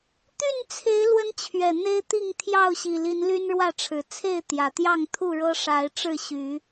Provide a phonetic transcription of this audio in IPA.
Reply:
t̪y˥˨nt͡sʰe˨˦ɪ̯ lwə˦nt͡ɕʰɥɛ˨˩n̪e˦ɪ̯ t̪i˥˨ŋt̪ʰjɑ˥˨ʊ̯ɕi˨˩li˨˦n ly˦nɻwä˥˨ʈ͡ʂʰɻ̩˨˩ t͡sʰe˥˨ɪ̯ t̪jä˨˩t̪jɑ˥˨ŋ t̪ʰu˥˨ɻɤ˦ʂa˨˦ɪ̯ ʈ͡ʂɻ̩˥˨ɕy˨˦

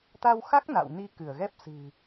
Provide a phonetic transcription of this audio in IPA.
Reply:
t̪a˧wxa˦˥k̚ na̰˧˨wni˧kɨ˧˩ə̯ɣɛ˦˥p̚ sɨ̤˨˩

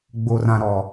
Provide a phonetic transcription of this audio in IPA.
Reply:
ɡ͡bo˨rã˨ ɾɔ˨

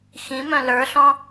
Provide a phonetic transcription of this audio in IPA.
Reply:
xĩmœ̃ lə˞ɬɔ̃

